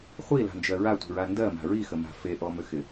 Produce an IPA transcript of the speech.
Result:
χʷ i l a̤ n d͡ʒ ɜ ɹ a tʷ i̤ ɹ a n d ɜ m a̤ ɹ i x ə m a̤ f e ʔ ɔ m ʏ x ɪ

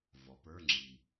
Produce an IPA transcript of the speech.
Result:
v ɔ˩˧ p ə˞˧˥˧ ŋ͡ǁ i˨˩

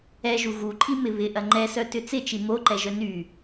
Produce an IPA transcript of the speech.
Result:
ɛ ʒ u ɣ u ǃʼ i m ɪ β ɪ ʔ ɐ ŋ͡ǃ ɛ s œ t ʏ t͡s ɪ t͡ʃ i m o ǃ ɛ ʒ œ n y

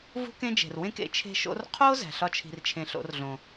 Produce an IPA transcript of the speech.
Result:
v ṳ˦ k ẽ˦ d͡ʒ e̤˨ r w ẽ˧ k ḛ˨˦ t͡ʃʰ e̤˧ ʃ o̰˧ r qʰ o˦ z æ̤˨ ɬ ɒ˧ t͡ʃʰ i̤˨ r t͡ʃʰ ẽ˨ ɬ o̰˨˦ r ɮ õ˨

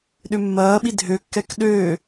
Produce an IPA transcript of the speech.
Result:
ɗ ʏ mː ɐː ɓ i dʱ ø kː ɛ k ɗ øː

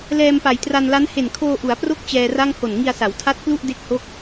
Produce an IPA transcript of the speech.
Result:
l ɛː˧ m p a˩˦ j t r a˧ n l a˦˥ n h e˨˩ n kʰ oː˧ ʔ u˩˦ a̯ p r o˦˥ k̚ t͡ɕ ɛː˧ r a˥˩ ŋ h o˨˩ n ŋ i˧ a̯ s a˩˦ w tʰ a˦˥ t̚ k l u˥˩ ʔ d e˦˥ k̚ h o˦˥ k̚

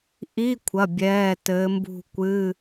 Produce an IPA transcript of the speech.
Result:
ʔ i˧˥˧ kʷʰ ɐ˩˧˩ bʲ ɛː˩˧˩ t ɘː˨˦ m b ṳ˦˨ kʷ ɨ˧˥˧

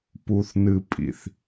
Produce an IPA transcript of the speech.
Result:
p u˨ θ n ɨ˨ pʼ ḭ˨ θ

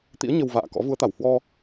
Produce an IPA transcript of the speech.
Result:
t̪ ḭ˧˥ ə̯ ɲ ə˧ w v a̰ː˧˨ k ɔ̰˧˥ v u˨˦ ə̯ t̪ a˧˩ w h w ɔ˧

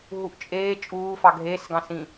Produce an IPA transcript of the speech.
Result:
ɦ u ʔ t͡ʃʼ eː t͡ʃʼ uː f ɑ ɡʱ eː s ɡ ɑ̃ s ĩ

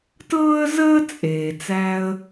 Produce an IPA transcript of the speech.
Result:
t ɤː˥ ə̯ z əː˥ t͡sʼ eː˩ t͡s æ˧ ə̯

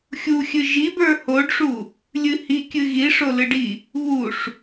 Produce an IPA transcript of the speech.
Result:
xʲ u xʲ ɨ ʒ i b ə˞ h o ɖ ʂ u | lʲ ɨ h i kʲ ɨ ɣ i ʂ o l ɨ ɖ i | β u ʂ

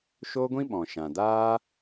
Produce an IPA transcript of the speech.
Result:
ʃ oː˦ ɡʷ ĩ˦ ɓ ɔ̃˨ ʃ ã˨ d aː˦

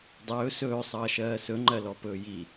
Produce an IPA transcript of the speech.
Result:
dˤ ɵː s ɵː sˤ ʌː ʃ ɜː s ɵ ŋ͡ǃ ɜ l ɔ p ɵː j i

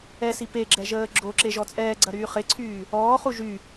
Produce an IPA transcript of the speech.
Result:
ɛ s i p e ɡ͡ǁ ɛ ʒ əː ɡ͡ǁ o ǁ e ʒ ɔ t͡sʼ ɛː ɡ͡ǀ ɐ ɾ yː χ ɪ ǀʰ yː | ɔː χ u ʒ y

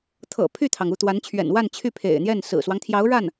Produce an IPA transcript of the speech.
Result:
t̪ʰ ɤ̰˨˩ pʰ y˥˩ t̪ʰ ɑ˩ ŋ u˥˩ t̪ w a˧˥ n t͡ɕʰ ɥ ɛ̰˨˩ n w a˥˧ n t͡ɕʰ y˥˩ pʰ ḛ˨˩ ɪ̯ n̪ j ɛ˥˩ n s ɹ̩˨˩ s w ɑ˦ ŋ t̪ʰ j ɑ˧˥ ʊ̯ ɻ a˥˩ n

